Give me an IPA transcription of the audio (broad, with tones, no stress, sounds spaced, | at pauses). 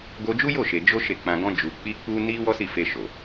ɡ o˧ d͡ʒ u˦ j o˦˨ ʃ e˨ d͡ʒ o˧ ʃ e˨ k͡p ã˨ ɡ ɔ̃˧ d͡ʒ u˨ k͡p i˧ k͡p u˧ n i˦ w ɔ˦ s i˦˨ f e˧ ʃ o˨